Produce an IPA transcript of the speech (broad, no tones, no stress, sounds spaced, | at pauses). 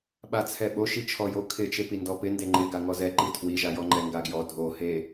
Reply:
ɓ a t͡sʰ ɛ ɓ o ʃ i t͡ʃʰ ɔ j o kʰ ɪ t͡ʃ e p i n d ɔ p ɪ n d e ŋ͡ǃ ɪ ɡ a ŋ ɔ z ɛ ǃ i tʰ w i ʒ a j ɔ ŋ͡ǃ ɛ ŋ ɡ a ɡ j ɔ dʱ o h e